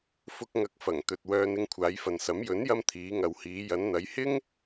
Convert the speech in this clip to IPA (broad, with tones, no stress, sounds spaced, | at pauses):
f ʊ˧ k̚ ŋ ɐ˨˥ k̚ f ɐ˨˩ ŋ t̪ ɵ˨ t̚ w œː˧ n ɪ˧ ŋ kʷʰ aː˨˧ j f ɐ˨ n s ɐ˨˥ m j ɵ˨˥ n j ɐ˧ m t̪ʰ iː˨˧ ŋ ɐ˨ w h iː˨˧ j ɐ˨˧ n n̪ ɐ˨˧ j h ɪ˥ ŋ